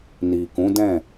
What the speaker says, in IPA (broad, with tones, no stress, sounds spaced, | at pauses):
n i˨ k ũ˨˦ d ɛ̃˦˨